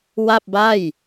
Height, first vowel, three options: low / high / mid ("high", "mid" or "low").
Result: low